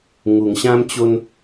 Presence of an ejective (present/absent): absent